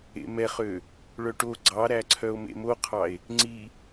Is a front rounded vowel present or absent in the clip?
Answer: present